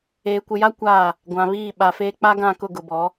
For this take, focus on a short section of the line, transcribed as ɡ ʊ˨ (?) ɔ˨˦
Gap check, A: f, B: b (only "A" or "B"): B